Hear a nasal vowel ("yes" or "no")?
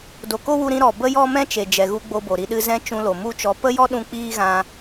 yes